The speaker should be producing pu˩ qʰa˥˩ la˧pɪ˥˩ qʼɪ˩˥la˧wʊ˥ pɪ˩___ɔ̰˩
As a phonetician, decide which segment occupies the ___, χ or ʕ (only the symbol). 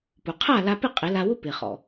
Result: χ